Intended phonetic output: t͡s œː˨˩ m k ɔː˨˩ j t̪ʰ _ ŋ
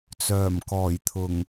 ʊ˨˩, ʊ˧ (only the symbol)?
ʊ˨˩